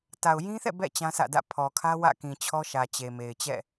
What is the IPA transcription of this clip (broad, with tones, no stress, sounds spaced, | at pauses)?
t a˨ ʊ̯ j ĩ˦ θ ɛ̰˦˨ b ɛ̰˦˨ t͡ɕ ã˦ s ä̰˦˨ d ä̰˦˨ pʰ ɔ˨ kʰ ä˦ w ä̰˦˨ k ĩ˨ t͡ɕʰ ɔ˦ ʃ ä˨ t͡ɕ e˨ m e˨ ɪ̯ t͡ɕ ɛ̰˦˨